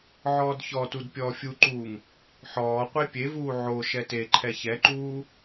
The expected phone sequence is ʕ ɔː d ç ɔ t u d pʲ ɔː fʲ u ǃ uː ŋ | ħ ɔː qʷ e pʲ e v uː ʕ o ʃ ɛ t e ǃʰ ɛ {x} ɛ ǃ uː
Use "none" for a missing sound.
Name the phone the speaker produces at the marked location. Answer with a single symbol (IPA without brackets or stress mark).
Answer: ç